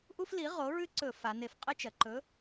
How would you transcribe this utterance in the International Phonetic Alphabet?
ʔ u˥ f l i˨˥ ʁ o˨˥ ɹ ʉ˥ ǀ ɵ˧˩˧ f a˩˧ n e˧˩˧ f qʼ ɨ˥ t͡ʃ ɐ˩˧ ǃ ɵ˨˥

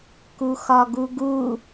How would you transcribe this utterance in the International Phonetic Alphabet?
k u x ɒ ɡ u ɡ u

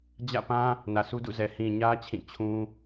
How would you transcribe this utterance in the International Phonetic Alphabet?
d͡ʑ ä̰˦˨ p ã˦ | n ä˨ sʰ u˦ d ṵ˦˨ z ɛ˨ h ĩ˨ ɲ ä˦ t͡ɕʰ ĩ˦˨ t͡ɕʰ ũ˦

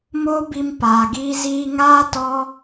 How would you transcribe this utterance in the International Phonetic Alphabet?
m oː˦ b i˧ m p aː˨ ɡ iː˦ z iː˧ ŋ aː˦ t ɔ˦

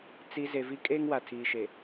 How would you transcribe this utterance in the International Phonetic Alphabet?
t͡s i˨ z e˨ v i˦ kʼ eː˦ ŋ w a˨ tʰ iː˨ ʃ e˨

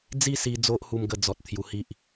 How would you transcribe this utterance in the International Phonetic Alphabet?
d͡z i˥˧ s i˧ d͡z o˦ ʔ h u˧ m ɡ ə˧ d͡z ɔ˨ t̚ t̪ʰ j u˧ h i˦ ʔ

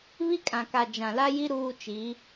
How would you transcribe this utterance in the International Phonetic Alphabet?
β i˦ kʼ ã˨ k a˨ d͡ʒ ã˨ l a˦ j i˦ ɾ uː˦ t͡ʃ i˨˦

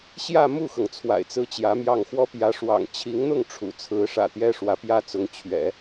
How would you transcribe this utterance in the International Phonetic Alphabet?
ɕ j ä˥˧ m u˥˩ x ɤ˩ ŋ t͡sʰ w a̰˨˩ ɪ̯ t͡s ɹ̩˥ t͡ɕ j ä˧˥ m j ɑ˥˩ ŋ x w ɔ˥ p j ä˧˥ ʂ w ɑ̰˨˩ ŋ t͡ɕʰ i˧˥ ŋ n̪ ʊ˥˩ ŋ ʈ͡ʂʰ ṵ˨˩ t͡sʰ ɹ̩˧˥ ʂ ä̰˨˩ t̪ j ɛ˥ ʂ w ä˧˥ p j ä˥ t͡s ʊ˧˥ ŋ t͡ɕʰ ɥ ɛ̰˨˩˦

